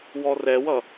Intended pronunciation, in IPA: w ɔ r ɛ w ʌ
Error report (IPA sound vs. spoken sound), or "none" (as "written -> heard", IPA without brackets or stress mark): none